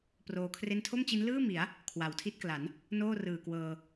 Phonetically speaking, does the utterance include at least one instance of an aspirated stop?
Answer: yes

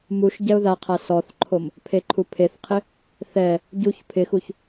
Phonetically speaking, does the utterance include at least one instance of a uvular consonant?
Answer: yes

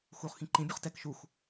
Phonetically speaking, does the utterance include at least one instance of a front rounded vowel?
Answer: no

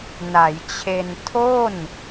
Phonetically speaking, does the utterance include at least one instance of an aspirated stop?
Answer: yes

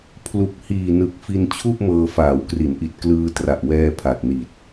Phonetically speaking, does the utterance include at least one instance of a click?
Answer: no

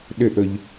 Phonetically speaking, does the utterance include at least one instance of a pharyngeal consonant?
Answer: no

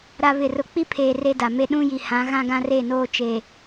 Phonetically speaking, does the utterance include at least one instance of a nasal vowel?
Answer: yes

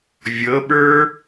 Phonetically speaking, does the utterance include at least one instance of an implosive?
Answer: yes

